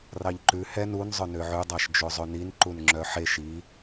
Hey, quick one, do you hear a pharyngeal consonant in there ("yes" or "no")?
yes